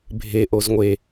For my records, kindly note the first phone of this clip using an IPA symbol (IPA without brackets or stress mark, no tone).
bʱ